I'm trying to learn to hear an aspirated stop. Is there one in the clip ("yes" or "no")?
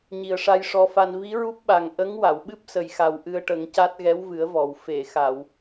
no